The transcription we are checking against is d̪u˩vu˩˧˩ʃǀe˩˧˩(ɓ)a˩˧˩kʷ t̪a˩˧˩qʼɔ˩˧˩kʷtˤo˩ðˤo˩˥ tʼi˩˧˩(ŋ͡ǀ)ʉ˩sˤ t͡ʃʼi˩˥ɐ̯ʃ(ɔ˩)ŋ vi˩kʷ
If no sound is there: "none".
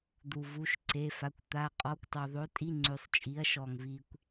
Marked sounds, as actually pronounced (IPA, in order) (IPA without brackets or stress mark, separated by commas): f, ŋ͡ǀ, ɔ˩